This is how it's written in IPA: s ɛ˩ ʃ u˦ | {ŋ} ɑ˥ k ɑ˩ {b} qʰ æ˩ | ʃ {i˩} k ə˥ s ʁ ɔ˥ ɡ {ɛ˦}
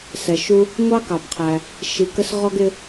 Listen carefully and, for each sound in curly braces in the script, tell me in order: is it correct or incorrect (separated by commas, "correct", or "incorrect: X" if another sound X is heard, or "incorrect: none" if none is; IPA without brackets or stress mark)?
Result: incorrect: ŋʷ, correct, incorrect: i˨, incorrect: ɪ˦